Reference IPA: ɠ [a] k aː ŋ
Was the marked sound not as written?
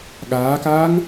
yes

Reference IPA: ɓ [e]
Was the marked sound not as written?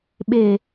no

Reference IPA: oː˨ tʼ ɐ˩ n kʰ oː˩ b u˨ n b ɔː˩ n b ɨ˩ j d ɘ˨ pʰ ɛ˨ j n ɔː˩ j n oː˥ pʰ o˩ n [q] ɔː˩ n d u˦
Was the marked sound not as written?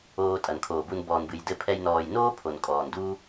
yes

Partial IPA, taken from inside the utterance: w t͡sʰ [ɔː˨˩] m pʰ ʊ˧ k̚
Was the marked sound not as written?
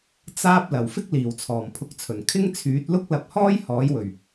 no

